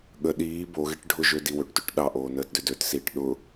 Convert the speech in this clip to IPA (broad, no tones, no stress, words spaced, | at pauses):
ɠə ɗiː boɣeʈ ɖʱʊʒød iwøʈtøʈ ɗɑʔoː nəːtdʏdøtsiːʈ ɗʊ